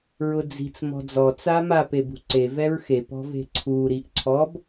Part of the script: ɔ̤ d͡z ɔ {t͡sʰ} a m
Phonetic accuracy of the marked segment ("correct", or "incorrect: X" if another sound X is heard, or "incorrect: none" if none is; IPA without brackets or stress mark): incorrect: t͡s